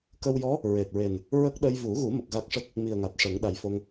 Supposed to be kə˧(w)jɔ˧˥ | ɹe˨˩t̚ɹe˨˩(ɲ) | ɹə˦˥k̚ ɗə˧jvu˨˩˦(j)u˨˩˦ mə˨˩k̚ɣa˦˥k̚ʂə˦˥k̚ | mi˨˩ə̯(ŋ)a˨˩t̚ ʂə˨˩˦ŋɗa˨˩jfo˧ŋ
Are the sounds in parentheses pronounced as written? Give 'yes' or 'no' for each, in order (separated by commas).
yes, no, no, yes